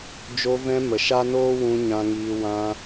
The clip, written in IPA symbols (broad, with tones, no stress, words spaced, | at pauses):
d͡ʒo˧vɛ̃˧mə˨ ʃa˦noː˦wũ˧ ɲã˨ŋiː˨ wã˧